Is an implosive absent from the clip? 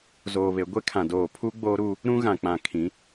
yes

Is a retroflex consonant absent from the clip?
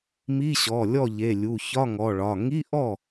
no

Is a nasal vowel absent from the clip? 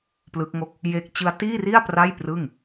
yes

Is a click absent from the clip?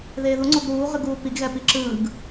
no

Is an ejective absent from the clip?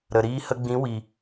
yes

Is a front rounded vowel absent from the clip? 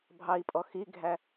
yes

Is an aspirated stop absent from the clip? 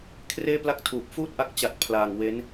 no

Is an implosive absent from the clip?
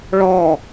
yes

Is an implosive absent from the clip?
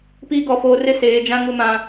yes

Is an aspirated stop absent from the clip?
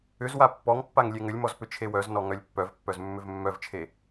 no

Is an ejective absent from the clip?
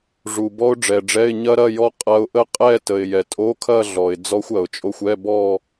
no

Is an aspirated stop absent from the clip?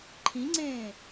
no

